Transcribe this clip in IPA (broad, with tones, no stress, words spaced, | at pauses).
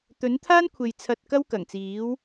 t̪ɵ˨˥nt̪ʰaː˥nkʷʰe˨j t͡sʰɐ˧t̚kɐ˥w kɐ˨˩ŋt͡siː˨˥w